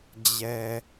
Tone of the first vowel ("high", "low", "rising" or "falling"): low